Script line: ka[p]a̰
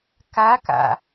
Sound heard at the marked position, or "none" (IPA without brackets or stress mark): k